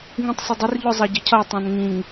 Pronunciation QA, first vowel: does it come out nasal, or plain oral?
nasal